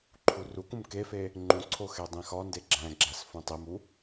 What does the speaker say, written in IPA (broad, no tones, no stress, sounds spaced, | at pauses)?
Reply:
ǃʰ u r u k ũ m k e f e | ŋ͡ǃ ũ ǀʰ o x e dˤ ĩ x ɒ n d e ɡ͡ǁ æ̃ ɡ͡ǁ æ s f ũ tˤ i m u